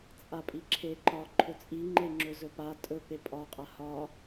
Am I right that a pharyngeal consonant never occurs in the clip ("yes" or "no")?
yes